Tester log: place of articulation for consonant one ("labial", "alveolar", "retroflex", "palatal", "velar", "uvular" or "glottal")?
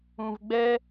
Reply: labial